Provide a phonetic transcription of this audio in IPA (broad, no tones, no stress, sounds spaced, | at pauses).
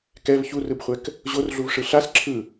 k ɛ v ç u r ɯ b χʷ ɛ k | ʑ o r ɮ u v ʂ ɯ ɬ a s ǁʰ ɯ